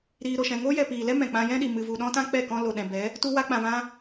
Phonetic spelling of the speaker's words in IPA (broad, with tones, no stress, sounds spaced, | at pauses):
ɾ iː˧ ɾ o˨ ʃ ɛ̃˨ ŋ oː˦ j ɛ˨ p iː˨ l ɛ˦ m ɛ̃˨ k͡p ã˧ j ɛ̃˦ ɗ i˨ m ɨ˨ v u˨ ɗ ɔ̃˦ t ã˦ k͡p ɛ˦˨ k ɔ̃˦ l o˨ ɗ ɛ̃˨ b ɛ˨˦ | t u˧ w a˧ k͡p ã˨ v ã˧